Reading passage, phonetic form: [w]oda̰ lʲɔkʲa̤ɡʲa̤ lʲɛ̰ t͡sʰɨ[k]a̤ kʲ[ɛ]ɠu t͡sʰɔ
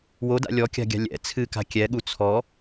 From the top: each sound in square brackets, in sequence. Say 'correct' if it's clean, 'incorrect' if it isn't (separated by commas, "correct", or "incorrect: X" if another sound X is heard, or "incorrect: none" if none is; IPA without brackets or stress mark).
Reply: correct, correct, correct